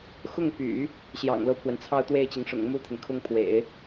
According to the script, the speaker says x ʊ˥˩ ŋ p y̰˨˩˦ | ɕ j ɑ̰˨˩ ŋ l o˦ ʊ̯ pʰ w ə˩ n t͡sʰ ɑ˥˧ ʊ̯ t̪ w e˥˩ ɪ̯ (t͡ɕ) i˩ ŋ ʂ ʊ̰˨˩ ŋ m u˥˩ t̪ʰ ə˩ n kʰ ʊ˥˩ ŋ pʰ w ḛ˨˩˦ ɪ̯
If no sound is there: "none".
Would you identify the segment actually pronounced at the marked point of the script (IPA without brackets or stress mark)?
t͡ɕ